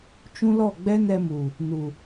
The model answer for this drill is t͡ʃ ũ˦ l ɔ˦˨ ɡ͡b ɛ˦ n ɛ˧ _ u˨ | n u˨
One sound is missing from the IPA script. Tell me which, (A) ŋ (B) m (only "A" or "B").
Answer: B